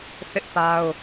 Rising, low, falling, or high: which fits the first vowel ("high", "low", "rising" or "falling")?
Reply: high